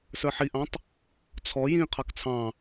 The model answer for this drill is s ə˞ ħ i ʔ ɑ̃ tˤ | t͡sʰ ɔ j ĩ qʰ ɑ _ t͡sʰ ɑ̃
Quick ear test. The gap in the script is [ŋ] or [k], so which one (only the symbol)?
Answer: k